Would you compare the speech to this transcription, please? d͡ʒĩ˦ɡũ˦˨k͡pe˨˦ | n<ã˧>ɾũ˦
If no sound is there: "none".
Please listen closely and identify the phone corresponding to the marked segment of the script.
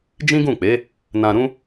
ã˧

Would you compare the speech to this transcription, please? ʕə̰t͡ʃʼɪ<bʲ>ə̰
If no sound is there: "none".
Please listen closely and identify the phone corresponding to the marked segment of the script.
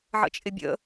bʲ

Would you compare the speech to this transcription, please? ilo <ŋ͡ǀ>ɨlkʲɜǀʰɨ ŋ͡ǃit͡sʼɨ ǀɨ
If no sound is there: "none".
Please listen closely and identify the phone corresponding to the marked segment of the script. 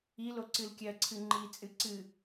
ǀ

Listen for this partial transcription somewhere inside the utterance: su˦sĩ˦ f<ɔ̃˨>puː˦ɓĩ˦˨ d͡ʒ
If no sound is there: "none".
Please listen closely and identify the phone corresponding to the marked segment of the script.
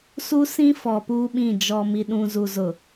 ɔ˨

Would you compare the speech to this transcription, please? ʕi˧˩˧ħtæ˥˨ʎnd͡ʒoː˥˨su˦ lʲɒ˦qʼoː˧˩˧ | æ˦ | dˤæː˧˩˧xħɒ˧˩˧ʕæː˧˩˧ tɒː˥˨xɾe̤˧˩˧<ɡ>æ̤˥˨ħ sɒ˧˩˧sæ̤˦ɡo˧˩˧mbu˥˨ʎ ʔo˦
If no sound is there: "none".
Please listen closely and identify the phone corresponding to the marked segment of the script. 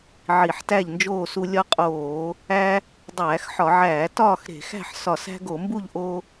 x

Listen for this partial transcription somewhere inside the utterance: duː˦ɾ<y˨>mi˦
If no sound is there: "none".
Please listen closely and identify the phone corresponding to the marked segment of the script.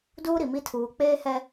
i˨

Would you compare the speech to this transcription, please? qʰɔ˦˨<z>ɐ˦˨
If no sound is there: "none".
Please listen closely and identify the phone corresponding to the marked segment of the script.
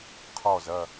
z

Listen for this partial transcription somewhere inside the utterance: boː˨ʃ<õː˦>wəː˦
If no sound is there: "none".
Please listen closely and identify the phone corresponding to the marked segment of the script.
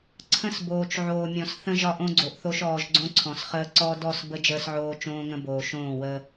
õː˦˨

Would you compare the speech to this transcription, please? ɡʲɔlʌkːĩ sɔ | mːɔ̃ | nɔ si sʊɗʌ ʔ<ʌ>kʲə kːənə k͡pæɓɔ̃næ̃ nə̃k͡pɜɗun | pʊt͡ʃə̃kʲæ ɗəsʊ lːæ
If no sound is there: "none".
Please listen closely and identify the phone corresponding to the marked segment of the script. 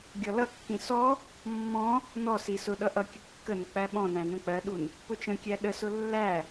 ʌ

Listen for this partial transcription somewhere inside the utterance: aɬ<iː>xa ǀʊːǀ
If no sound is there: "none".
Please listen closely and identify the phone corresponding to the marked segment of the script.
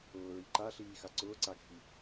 iː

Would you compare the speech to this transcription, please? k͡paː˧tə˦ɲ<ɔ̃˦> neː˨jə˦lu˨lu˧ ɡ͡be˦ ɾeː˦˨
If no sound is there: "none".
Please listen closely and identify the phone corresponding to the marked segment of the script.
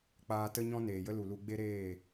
ɔ̃˦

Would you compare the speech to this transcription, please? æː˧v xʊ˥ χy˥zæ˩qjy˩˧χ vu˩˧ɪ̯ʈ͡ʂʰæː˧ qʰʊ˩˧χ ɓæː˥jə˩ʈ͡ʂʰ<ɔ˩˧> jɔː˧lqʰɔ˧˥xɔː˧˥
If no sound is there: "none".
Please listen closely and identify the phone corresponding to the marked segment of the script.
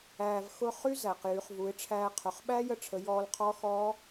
ə˩˧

